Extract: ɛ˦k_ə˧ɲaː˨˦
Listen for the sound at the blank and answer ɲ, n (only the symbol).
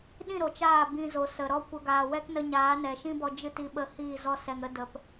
n